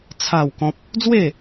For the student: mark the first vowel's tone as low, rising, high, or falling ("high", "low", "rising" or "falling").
falling